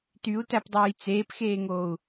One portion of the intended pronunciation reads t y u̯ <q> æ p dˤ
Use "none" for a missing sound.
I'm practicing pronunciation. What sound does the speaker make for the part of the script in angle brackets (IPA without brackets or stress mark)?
t